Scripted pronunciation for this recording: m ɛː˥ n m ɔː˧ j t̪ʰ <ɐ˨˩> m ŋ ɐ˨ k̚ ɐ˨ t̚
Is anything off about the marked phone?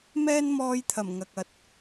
no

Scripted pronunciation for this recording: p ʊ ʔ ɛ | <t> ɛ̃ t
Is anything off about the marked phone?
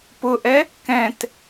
yes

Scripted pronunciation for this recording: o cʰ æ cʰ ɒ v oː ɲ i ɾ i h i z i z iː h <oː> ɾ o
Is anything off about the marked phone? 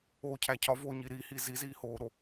no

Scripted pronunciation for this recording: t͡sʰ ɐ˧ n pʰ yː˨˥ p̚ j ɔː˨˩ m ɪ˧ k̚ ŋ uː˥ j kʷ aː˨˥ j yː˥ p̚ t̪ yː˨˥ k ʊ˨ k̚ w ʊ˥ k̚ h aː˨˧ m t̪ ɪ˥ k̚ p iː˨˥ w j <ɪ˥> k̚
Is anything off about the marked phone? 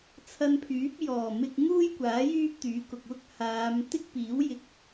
yes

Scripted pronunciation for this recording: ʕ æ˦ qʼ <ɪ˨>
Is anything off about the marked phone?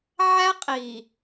yes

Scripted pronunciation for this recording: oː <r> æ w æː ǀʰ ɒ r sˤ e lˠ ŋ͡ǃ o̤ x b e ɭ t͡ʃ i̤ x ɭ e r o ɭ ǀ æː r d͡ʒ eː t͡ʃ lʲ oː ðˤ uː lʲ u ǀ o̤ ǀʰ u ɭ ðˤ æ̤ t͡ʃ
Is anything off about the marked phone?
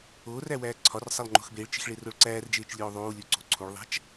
no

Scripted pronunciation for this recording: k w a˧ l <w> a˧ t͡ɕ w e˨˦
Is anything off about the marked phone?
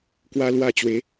no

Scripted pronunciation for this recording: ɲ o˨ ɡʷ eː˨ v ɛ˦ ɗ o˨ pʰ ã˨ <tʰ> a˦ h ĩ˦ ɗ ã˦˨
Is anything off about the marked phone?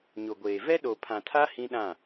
no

